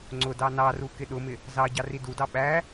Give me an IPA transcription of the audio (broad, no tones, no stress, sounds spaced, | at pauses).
ŋ͡ǀ ʊ d ɑ n ɑ r u k ɪ ɗ ʊ m ɪ | z ɑ ɟ ɑ r i d u d ɑ ɓ æ